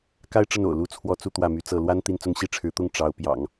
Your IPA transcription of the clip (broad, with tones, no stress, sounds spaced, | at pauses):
k a˥ ɪ̯ ʈ͡ʂ ə˥˩ n o̰˨˩ ʊ̯ l u˥ t͡sʰ w ɔ˥˧ t͡s u˥˧ t̪ w ä˥˩ m y˧˥ t͡s ɤ˥˩ l w a˥ n t̪ i˥˧ n t͡s ʊ˥˧ ŋ ɕ i˥˩ ʈ͡ʂʰ ɻ̩˧˥ t̪ ʊ˥˩ ŋ ʈ͡ʂ ɑ˧˥ ʊ̯ p j ɑ̰˨˩˦ ŋ